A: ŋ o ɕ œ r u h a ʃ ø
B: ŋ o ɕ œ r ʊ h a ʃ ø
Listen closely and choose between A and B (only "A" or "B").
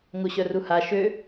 A